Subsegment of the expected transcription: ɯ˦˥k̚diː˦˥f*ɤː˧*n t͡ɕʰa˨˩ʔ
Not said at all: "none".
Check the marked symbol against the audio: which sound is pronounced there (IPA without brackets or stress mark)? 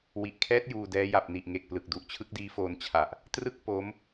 oː˧